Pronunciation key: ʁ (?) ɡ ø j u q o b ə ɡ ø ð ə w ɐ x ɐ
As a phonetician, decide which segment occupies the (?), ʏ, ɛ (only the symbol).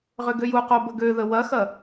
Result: ʏ